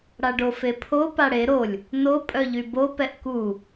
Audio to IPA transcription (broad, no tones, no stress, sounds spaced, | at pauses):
ɽ a ɖ o f e pʰ o p a ɽ e ɾ o lʲ | n o pʼ œ ʎ y b o p ɛ ʔ k u